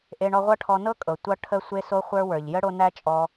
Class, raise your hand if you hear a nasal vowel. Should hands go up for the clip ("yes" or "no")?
no